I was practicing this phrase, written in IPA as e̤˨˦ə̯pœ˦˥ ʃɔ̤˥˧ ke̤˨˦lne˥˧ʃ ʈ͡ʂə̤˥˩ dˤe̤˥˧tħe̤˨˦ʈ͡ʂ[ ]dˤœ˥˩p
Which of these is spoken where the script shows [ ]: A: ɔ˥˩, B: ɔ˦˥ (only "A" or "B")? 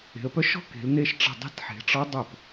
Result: B